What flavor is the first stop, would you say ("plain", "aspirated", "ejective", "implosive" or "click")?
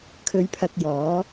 aspirated